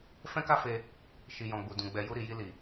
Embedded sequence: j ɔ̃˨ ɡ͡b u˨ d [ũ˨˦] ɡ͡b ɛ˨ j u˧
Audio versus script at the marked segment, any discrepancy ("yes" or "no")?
yes